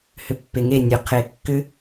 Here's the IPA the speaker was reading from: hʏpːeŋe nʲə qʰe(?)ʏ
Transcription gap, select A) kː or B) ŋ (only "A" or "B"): A